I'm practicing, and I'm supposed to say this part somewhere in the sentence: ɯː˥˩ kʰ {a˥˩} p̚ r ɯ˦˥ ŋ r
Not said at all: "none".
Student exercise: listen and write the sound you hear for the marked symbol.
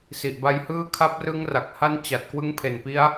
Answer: a˦˥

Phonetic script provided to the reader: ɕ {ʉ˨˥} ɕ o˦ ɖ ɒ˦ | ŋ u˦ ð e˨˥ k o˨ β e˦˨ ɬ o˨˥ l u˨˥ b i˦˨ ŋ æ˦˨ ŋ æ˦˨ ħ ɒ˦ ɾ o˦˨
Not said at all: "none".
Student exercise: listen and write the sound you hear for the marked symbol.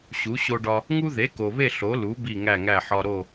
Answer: u˨˥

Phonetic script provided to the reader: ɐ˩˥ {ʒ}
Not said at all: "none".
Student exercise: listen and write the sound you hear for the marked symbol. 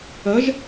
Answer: ʒ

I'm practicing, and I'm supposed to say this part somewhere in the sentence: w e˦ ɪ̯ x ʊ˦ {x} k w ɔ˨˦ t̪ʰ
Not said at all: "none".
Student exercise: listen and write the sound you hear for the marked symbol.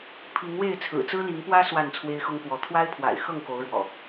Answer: ŋ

